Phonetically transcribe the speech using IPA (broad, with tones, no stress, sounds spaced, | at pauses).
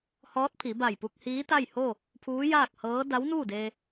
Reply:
h ɔː˧˥ t̚ pʰ i˩˧ b a˧˩ j p u˧ k̚ h iː˧˥ t̪ a˥˨ j h o˥˨ | pʰ uː˧˥ j aː˥˨ k̚ h ɤː˧˥ d a˧˥ w n uː˥˨ d eː˧